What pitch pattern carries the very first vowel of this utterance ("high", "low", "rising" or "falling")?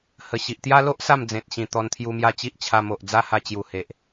low